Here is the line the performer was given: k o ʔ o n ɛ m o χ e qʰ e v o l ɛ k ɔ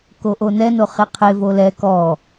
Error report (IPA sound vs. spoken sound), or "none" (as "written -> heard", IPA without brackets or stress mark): m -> n